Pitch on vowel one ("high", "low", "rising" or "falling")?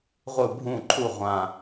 falling